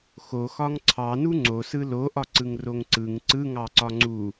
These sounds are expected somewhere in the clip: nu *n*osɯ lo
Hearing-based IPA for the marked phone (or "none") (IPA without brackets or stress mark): ŋ͡ǀ